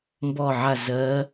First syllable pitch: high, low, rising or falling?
falling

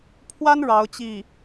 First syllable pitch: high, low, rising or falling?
high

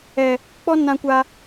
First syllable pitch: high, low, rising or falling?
low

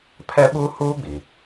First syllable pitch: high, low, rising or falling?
high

